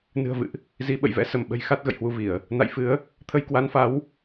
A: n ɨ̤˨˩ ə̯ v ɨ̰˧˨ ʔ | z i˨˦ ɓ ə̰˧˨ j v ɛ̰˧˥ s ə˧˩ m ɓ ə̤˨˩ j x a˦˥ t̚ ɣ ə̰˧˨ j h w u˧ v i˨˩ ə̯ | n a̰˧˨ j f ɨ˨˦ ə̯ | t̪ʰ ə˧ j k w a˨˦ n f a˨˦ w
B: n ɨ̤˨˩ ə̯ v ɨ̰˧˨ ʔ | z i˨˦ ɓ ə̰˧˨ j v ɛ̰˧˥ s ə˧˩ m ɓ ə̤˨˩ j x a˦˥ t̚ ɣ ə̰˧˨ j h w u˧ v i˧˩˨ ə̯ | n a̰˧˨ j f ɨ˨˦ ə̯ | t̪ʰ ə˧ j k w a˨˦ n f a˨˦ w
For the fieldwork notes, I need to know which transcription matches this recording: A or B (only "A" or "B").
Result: B